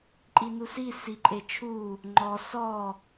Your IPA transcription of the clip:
ǃʼ i n u s i s i ǃʼ e t͡ʃʰ u | ŋ͡ǃ ɔ s ɔ

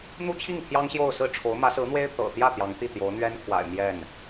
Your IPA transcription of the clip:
n̪ u˥ t͡ɕʰ i˥˩ ŋ t̪ʰ j ɑ˥ ŋ ɕ j o˥˧ ʊ̯ s ɹ̩˥˩ ʈ͡ʂʰ o˧˥ ʊ̯ m ä˧˥ s ɹ̩˧˥ n̪ w e˥ ɪ̯ t̪ ɤ̰˨˩ t̪ j ä˥˩ t̪ j ɑ˧˥ ŋ t̪ i˥˩ t̪ j o˧˥ ʊ̯ n̪ ɥ ɛ˥ n kʰ w a̰˨˩ ɪ̯ m j ɛ˥˩ n

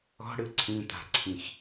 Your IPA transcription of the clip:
ɔ̤ ɽ ɯ ǀʰ ĩ t̪ a̤ ǀʰ ĩ x

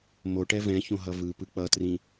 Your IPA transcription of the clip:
m o ʈ ɛ v ɛ̃ ç õ ɦ ʌ v ɯ p ɯ k͡p ʌ t r ĩ

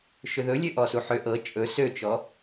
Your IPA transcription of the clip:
ʃ ʏ ð ɵ lʲ ø ʔ ɔ s u ħ ø ʔ ɤ t͡ʃʼ ɵ s ø t͡ʃ ɔ

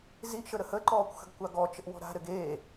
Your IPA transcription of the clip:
z i ʔ ʃ ə ɾ ə h ə ǃ ɔː kʷ x ə̤ ɡ kʷ a ɡ ɔ t͡ʃ ə ʔ w ɔ̤ ɾ a̤ ɾ ɘ ɡ e

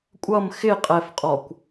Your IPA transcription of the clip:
kʷʼ ʌ m x ɪ qʼ ɛ f qʼ ɔ kʷ

